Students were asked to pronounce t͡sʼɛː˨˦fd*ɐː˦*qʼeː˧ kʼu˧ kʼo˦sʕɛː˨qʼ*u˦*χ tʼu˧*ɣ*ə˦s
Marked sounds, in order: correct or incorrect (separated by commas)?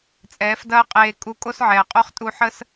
correct, incorrect, incorrect